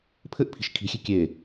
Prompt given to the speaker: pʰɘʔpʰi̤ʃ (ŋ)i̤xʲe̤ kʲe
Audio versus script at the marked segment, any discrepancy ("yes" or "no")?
yes